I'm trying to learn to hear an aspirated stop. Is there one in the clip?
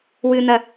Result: no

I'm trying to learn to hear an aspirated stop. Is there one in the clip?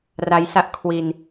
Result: yes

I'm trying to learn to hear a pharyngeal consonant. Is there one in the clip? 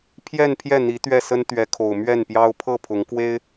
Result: no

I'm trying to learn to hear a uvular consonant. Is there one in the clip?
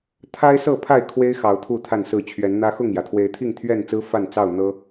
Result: no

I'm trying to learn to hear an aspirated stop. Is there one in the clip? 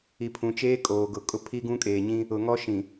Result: yes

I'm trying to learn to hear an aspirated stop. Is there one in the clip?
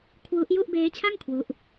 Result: yes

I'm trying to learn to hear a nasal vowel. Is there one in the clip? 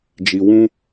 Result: yes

